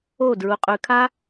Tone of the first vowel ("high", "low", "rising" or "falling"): falling